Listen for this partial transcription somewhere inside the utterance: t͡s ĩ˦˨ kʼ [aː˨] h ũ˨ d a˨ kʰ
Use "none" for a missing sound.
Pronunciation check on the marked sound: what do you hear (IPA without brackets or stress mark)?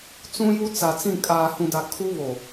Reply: aː˨